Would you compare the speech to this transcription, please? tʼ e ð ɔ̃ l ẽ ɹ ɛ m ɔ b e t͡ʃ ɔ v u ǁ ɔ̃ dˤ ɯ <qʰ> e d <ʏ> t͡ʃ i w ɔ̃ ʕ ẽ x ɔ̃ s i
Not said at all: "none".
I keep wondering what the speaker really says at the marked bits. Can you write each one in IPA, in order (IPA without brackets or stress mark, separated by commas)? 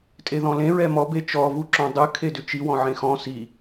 kʰ, ʏ